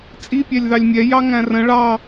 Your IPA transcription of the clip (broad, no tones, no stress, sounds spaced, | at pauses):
t͡sʼ i pʲ æ lʲ ð ɑ lʲ mʲ ɛ j ɑ ŋ æ̃ r ə̃ ɭ ɑ